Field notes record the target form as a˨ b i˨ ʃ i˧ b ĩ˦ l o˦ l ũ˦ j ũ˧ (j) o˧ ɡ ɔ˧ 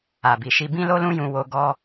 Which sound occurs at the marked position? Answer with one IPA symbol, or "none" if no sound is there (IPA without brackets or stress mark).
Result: w